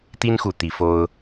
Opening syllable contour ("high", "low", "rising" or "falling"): high